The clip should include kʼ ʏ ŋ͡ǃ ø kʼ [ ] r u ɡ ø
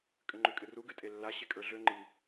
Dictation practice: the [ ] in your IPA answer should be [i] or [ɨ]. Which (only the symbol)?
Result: ɨ